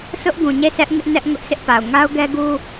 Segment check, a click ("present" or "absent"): absent